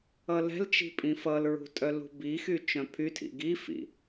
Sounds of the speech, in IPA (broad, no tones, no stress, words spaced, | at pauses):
ʌlɛ̤lt͡ʃi̤ pʼĩfʌlɹṳ tʼœlṳbixy t͡ʃœ̃pʰytʰḭ ɡifḭ